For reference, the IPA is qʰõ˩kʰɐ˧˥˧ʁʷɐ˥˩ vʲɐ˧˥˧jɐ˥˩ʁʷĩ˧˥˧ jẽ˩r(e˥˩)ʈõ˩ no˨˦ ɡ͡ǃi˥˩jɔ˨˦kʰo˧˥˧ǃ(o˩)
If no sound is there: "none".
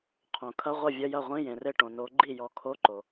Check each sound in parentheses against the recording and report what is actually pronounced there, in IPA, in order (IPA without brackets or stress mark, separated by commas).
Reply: e˥˩, o˩